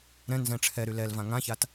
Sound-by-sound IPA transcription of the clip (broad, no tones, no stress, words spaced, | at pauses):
ɾɛ̃ nzɛ̃ʈ͡ʂʰɛɾy lɛlvã ŋãçat